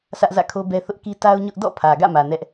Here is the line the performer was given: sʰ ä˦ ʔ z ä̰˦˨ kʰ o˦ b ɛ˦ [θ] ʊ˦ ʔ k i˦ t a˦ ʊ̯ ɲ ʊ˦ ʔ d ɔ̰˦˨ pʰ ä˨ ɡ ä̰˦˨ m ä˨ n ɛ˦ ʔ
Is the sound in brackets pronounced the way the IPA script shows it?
yes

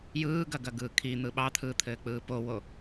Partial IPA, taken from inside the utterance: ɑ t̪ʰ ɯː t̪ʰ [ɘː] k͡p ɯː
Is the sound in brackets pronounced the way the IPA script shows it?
yes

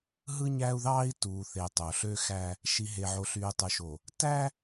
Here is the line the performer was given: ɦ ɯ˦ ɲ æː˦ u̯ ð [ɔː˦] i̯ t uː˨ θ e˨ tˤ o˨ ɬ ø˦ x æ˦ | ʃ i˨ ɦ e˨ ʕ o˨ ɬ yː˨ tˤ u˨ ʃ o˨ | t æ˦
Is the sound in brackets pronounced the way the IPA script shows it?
no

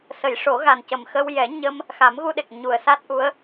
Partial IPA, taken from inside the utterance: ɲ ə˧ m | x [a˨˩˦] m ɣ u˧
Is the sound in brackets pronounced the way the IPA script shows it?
yes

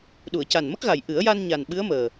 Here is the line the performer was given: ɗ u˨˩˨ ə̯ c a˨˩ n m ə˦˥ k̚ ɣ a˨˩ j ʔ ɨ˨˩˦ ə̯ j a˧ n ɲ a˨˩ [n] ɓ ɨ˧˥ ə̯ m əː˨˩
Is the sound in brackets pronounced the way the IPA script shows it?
yes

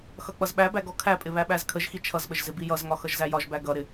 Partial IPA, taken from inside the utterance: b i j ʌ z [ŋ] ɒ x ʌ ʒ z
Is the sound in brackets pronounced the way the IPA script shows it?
yes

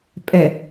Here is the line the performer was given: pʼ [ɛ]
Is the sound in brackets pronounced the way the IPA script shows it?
yes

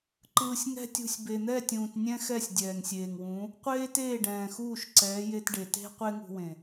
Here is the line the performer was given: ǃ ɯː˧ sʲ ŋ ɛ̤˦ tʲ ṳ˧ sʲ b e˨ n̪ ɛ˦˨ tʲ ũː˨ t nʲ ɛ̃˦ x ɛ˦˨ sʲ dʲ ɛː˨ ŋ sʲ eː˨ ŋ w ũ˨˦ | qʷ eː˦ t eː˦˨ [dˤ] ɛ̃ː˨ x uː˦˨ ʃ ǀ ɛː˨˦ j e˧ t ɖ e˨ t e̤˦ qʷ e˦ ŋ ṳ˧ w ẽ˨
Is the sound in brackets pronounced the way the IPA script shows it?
no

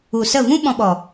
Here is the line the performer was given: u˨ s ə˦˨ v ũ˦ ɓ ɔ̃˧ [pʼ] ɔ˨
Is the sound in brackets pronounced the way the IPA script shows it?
no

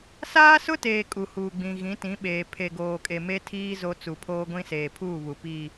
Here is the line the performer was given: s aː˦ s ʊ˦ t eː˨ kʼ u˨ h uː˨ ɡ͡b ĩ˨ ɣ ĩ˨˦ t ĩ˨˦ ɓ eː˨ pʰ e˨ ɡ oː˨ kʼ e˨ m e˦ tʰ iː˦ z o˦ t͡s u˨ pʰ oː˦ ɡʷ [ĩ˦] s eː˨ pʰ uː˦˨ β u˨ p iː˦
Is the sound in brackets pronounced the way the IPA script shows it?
yes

